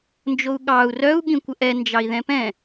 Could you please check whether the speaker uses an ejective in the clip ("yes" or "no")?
no